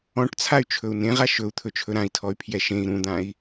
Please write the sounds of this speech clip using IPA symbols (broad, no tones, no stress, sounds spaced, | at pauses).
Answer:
ɔ̃ ʈ t͡sʰ a y̯ t͡ʃʰ ɵ u̯ n ẽ ʁ a ʃ ɵ u̯ t̪ʰ ɵ t͡ʃʰ ɵ ɾ ã i̯ tʰ ɔ y̯ pʰ j ɛ ʃ ẽ i̯ ɾ ũ d̪ ã i̯